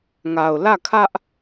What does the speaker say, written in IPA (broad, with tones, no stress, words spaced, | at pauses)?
ŋa˨ʊ̯lä˦˨kʰä˦ʔ